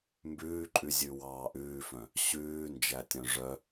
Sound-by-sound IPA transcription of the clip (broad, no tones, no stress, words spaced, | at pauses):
mbʉːǃʼʉzʲʉ wɑːʔʉːfœ̃ | ɕʉː nd͡ʒætʲœ̃ʐœ